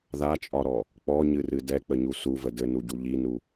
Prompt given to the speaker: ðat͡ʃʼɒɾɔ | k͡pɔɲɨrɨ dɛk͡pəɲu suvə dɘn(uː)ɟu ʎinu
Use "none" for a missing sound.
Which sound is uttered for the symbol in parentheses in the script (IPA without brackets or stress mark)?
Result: u